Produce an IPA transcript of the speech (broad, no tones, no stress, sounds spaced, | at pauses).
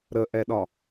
ɾ ə ʔ ɛ ɗ ɒ